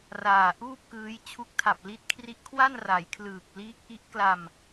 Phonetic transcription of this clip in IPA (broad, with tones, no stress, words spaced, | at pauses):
raː˨˩ʔuː˥˩p̚kɯː˦˥j t͡ɕʰu˦˥k̚tʰa˨˩p̚li˦˥t̚kʰri˦˥ʔ kʰwa˥˩nra˩˦jkʰlɯː˨˩k̚ liː˦˥k̚ʔi˦˥ʔ kla˧m